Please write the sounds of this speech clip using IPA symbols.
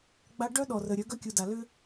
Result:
ɡ͡b a˦ ɖ œ˦ ɗ ɔ˨ r ə˨ ɾʲ œ˨˦ ɡ œ˦ kʲ u˨ d a˨ l ʏ˦

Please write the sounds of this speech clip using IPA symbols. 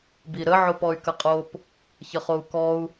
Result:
b i ɾ ə ʕ o p ɔ y̯ k ə qʼ o p | ç ə χ o u̯ k ɔ u̯

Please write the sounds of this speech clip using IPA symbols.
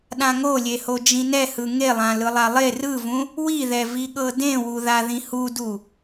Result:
ɗ ã ŋ o lʲ e h o d͡ʒ ĩ n ɛ h ɯ ŋ e lˠ ã l ɯ lˠ a lˠ e r ɯ v ũ | w i ð ɛ v i ɠ ɤ d ẽ w u ð a ð ĩ h u d u

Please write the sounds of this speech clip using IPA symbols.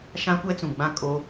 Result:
ʃ ã˦ kʷ ɛ˦ t͡s ũ˨ ɡ͡b ã˦˨ kʼ o˦

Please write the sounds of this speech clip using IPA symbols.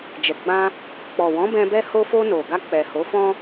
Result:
d͡ʒ ɛ˨ ɡ͡b ã˧ | k͡p ɔ˨ w ɔ̃˨˦ b ɛ̃˧ b ɛ˧ h o˧ f o˧ n o˨ ɡ a˧ k͡p ɛ˨ h o˨˦ f ɔ̃˦

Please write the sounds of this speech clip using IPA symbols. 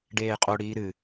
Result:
ɖ eː qʼ o ɽ iː ɾ ɨ

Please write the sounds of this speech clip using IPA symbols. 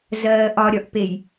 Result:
z ɜː ʔ ɒ ɾʲ ɒ ʔ p e j

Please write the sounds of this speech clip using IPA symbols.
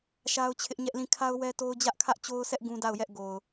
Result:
ʃ a˦ ʊ̯ t͡ɕʰ ɪ˦ ʔ ɲ ɛ˦ ʔ l ĩ˦˨ kʰ a˦ ʊ̯ w ɛ˦ t o˦ ʊ̯ d͡ʑ ä˦ ʔ kʰ ä˦ ʔ t͡ɕ o˦ ʊ̯ s ɛ˦ ʔ ɡ ũ˦ d a˦˨ ʊ̯ j ɛ˦ ʔ ɡ o˨ ʊ̯

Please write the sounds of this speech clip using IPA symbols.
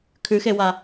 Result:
kʰ ʉ x e w a

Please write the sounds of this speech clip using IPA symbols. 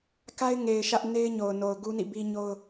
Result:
k a˦ ɪ̯ ŋ e˨ ɪ̯ ʃ ä˦ ʔ n e˦ ɪ̯ ɲ o˨ ʊ̯ n o˨ ʊ̯ ɡ u˦ n ḭ˦˨ b i˦ ɲ o˦ ʊ̯

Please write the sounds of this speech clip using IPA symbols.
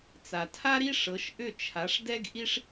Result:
t͡s a˩ tʰ a˥ ɾ i˥ ʂ ɤ˩˥ ʃ ʔ ʏ˥˩ t͡ʃʰ a˩˥ ʂ d ɛ˥ ɡ ʔ i˥ ʂ

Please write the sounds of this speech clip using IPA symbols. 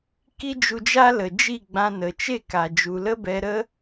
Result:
k i˦ d͡ʒ u˧ d͡ʒ a˦ l ə˨ d͡ʒ i˦˨ ɡ͡b ã˧ n ə˨ t͡ʃ e˦˨ k a˨ d͡ʒ u˨ l ə˦ b ɛ˧ ɾ ə˦

